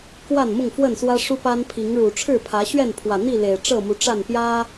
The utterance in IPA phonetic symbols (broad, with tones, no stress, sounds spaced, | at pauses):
k w a˥˨ n m ʊ˥˨ ŋ f w ə˥˨ n s w ä˦ ʂ u˦ p a˦ n pʰ i˨˦ ŋ ɻ u˨˩ ʈ͡ʂʰ ɻ̩˥˨ pʰ ä˨˦ ɕ ɥ ɛ˥˨ n pʰ w ä˨˩ n̪ i˥˨ l e˨˩ ɪ̯ ʈ͡ʂ ɤ˥˨ m u˨˦ ʈ͡ʂ a˥˨ n p j ä˦